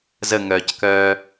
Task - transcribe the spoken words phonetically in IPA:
z ə ŋ œː c k œː

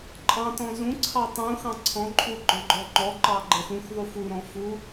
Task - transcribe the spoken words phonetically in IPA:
ǃʼ ɑ̃ t ɔ̃ z ũ ǀʰ ɑ tˤ ũ x ɑ̃ ǀʰ ɔ̃ ǃʼ u ɡ͡ǃ ɔ̃ ɡ͡ǃ ɔ ŋ͡ǃ ɔ ǃ ɑ ɡ͡ǃ ɛ x ũ x ðˤ u f u ɾ ɔ̃ f u

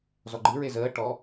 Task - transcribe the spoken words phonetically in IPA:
z ɔ ɡ͡ǃ ɨ ɹ e z əː ʈ ɔ

